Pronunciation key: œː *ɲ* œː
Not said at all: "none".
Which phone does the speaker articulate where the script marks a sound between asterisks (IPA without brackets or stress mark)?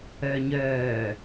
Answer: ɲ